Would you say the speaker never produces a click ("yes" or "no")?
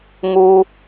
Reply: yes